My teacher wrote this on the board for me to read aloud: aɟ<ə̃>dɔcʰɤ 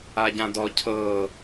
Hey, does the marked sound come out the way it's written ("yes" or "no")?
no